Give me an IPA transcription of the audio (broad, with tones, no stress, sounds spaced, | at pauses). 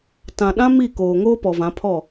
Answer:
t ã˨ ɗ ã˦ m i˦˨ k oː˨ ŋ oː˦ p ɔ˨ v ã˨˦ pʰ ɔ˦˨